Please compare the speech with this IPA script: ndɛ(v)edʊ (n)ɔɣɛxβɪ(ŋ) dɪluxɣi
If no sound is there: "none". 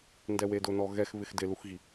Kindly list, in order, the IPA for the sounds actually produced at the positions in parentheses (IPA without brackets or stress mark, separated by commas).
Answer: w, n, x